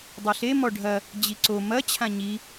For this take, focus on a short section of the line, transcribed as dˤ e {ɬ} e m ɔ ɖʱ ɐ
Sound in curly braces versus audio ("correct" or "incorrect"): correct